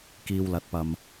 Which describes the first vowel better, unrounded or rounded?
unrounded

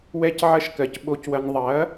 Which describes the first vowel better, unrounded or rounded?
unrounded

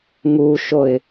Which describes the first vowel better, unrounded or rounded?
rounded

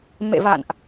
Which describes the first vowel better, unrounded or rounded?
unrounded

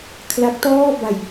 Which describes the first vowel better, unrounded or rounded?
unrounded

